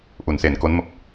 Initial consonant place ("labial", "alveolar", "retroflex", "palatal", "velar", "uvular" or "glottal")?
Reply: glottal